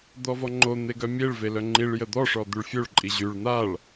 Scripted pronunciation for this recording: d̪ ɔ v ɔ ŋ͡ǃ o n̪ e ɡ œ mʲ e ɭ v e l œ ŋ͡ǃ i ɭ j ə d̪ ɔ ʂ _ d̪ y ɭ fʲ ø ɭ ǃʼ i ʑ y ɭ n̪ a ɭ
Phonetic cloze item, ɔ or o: ɔ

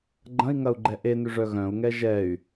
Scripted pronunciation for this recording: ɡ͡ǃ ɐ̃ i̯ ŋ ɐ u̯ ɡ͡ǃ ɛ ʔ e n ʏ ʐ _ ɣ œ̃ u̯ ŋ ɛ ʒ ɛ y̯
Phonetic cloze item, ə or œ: œ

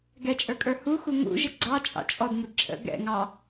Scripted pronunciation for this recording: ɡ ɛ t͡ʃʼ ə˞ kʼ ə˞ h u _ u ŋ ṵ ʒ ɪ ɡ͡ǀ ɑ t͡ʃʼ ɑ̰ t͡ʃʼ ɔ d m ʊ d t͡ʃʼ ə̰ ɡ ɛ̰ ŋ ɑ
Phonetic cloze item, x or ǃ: x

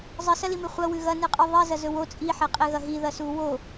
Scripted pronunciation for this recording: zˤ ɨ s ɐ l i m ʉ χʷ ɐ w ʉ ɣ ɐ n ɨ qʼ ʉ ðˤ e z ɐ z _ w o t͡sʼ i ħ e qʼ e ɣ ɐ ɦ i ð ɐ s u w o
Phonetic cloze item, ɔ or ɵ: ɵ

